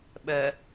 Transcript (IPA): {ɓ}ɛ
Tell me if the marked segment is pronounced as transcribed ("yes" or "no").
yes